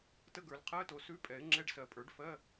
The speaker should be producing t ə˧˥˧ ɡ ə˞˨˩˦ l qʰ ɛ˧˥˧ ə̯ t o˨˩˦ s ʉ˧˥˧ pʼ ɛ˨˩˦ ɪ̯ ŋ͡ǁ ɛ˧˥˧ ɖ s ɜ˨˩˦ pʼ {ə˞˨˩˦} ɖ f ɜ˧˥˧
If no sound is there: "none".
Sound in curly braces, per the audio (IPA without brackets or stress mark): ə˞˨˩˦